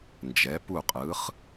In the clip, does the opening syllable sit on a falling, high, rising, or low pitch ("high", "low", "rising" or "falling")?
rising